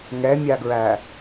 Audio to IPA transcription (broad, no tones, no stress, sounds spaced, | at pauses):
ŋ ɛ mʲ a ɡ ɹ æ